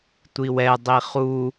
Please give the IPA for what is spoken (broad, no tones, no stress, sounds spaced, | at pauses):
tʷ i w ɛ dˤ i χ u